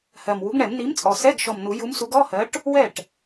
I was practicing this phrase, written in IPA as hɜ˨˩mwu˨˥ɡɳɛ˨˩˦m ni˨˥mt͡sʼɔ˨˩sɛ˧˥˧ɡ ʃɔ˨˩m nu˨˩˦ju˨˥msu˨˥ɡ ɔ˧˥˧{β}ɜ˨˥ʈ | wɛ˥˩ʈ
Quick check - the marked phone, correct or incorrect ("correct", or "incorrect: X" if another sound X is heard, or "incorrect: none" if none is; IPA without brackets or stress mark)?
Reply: incorrect: h